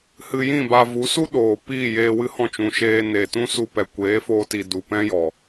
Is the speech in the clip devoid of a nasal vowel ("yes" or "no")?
no